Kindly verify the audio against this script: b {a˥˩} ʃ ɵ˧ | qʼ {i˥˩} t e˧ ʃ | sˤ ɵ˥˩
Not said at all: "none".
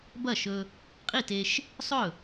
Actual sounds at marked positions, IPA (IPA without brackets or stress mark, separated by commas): ɐ˥˩, i˥˩